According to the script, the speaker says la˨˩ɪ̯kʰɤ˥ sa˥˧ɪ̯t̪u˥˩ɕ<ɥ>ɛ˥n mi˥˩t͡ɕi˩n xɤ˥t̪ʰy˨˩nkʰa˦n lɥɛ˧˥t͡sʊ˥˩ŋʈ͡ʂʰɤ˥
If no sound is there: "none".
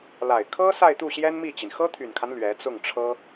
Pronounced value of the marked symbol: j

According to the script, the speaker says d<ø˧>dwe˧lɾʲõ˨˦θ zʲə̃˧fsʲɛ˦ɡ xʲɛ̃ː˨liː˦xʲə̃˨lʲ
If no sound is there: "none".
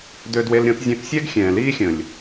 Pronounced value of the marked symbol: ø˧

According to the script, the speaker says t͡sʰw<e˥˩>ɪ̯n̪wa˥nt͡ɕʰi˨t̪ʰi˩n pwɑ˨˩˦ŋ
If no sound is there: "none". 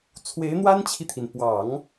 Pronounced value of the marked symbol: e˧˥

